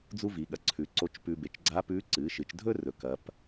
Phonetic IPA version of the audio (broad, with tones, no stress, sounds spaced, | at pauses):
d͡z u˥ v i˩˧ ɠ ɐ˩˧ ǀʰ ʉ˩˧ ǀ o˧˥ t͡ʃ p ʉ˧ b e˩˧ t͡ʃ ɡ͡ǀ a˧˥ p ʉː˧˥ ǀ ɨː˩˧ ʃ ɨ˩˧ t͡ʃ dʱ ɵ˥ r ɵ˩˧ k ɐ˩˧ p